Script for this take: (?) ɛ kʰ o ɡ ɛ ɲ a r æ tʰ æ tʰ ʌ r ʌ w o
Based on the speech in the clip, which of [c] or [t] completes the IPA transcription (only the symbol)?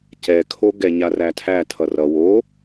c